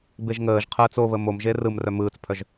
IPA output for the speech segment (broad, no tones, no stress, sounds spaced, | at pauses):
b e ʒ ŋ əː ʒ qʰ əː t͡s o β ə m o m ʒ e r ɯ m r œ m ɯː t͡s pʰ œ ʒ